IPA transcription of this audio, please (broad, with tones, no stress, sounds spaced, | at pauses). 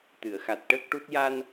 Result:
t̪ ɨ˨˩˨ ə̯ x a˨˩ t̚ ʈ əː˦˥ k̚ ʈ u˦˥ t̚ j a˧ n